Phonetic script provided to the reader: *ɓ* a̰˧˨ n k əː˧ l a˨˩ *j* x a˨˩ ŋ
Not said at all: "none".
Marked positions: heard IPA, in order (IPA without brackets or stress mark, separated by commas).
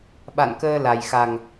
ɓ, j